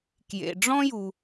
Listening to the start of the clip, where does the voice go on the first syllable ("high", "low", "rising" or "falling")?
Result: low